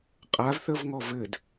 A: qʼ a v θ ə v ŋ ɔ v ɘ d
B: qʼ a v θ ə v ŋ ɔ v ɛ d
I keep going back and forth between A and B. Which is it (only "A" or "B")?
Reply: A